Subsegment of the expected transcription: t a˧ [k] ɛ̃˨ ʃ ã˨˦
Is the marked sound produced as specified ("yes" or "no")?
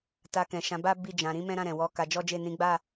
yes